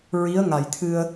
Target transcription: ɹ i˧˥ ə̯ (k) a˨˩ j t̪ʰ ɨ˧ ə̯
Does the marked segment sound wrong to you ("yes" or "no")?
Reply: yes